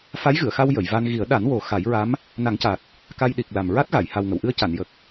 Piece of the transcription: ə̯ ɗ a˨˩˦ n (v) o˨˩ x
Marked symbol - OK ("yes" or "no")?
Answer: no